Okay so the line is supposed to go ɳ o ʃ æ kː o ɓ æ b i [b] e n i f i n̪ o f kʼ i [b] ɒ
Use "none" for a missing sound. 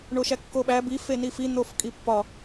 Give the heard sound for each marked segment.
f, pː

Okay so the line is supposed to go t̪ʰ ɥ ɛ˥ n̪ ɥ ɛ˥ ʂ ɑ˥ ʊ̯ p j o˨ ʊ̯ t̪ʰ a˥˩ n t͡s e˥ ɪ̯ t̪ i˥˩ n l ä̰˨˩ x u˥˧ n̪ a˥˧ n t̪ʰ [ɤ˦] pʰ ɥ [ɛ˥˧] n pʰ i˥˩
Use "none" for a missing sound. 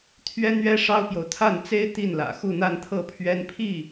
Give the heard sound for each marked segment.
ɤ˥˩, ɛ˥

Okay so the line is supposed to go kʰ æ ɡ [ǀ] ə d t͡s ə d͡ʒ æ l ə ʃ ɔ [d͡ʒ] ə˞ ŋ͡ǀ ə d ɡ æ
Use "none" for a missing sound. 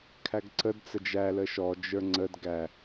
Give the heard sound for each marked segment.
ǀ, d͡ʒ

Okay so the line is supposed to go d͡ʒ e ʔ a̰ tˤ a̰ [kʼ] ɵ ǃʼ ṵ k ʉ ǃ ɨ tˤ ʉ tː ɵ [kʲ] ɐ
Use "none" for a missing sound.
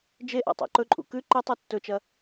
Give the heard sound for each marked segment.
ǃ, t͡ʃ

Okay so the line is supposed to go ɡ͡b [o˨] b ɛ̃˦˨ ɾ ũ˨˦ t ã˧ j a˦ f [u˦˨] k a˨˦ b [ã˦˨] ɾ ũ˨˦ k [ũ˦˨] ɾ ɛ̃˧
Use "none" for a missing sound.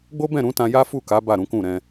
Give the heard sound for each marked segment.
o˦, u˦˨, a˦˨, ũ˦˨

